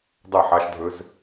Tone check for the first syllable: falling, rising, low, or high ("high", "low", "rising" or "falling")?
falling